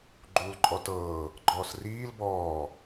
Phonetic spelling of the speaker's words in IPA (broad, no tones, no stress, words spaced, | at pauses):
ɡ͡ǃuːlǃʼɔtɤː | ɡ͡ǃɔːsriːl bɔː